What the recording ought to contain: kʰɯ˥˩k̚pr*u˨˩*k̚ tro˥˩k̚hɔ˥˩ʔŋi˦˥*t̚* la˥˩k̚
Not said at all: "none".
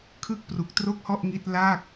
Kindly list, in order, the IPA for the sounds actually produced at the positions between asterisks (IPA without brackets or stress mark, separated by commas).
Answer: u˨˩, t̚